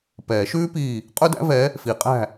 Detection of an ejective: present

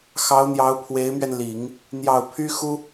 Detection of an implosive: absent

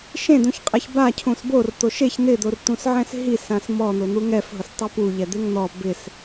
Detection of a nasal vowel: present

